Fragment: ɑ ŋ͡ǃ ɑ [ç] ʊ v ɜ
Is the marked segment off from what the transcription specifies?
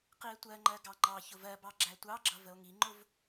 no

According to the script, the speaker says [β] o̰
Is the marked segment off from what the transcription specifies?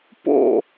yes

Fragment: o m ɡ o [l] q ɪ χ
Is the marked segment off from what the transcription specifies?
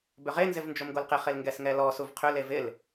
no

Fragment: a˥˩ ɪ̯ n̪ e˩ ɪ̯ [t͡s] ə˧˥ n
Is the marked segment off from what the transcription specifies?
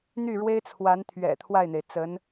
no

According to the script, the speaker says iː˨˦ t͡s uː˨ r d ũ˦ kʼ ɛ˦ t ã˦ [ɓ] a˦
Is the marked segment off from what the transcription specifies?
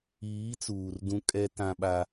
no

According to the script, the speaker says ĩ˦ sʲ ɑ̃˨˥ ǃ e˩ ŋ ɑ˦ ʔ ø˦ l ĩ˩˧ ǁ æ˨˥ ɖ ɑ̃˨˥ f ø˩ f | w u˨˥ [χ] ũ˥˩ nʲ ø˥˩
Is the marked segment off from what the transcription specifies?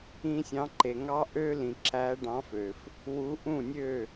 yes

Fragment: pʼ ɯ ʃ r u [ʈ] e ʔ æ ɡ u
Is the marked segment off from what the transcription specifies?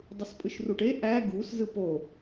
no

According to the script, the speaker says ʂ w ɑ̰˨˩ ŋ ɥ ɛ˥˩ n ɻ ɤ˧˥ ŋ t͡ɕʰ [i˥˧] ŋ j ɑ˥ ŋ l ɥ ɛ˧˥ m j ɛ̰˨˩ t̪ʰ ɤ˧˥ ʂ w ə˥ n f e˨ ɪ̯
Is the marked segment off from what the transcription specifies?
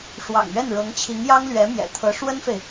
yes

